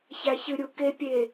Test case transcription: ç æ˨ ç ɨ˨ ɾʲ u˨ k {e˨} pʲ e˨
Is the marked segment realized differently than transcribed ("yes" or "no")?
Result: no